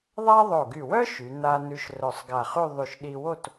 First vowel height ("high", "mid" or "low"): low